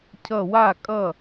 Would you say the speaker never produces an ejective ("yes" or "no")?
no